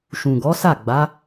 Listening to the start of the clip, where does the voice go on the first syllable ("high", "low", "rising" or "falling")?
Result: low